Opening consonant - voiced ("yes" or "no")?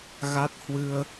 yes